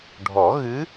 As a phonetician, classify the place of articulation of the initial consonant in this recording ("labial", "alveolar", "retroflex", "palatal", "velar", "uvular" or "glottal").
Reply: retroflex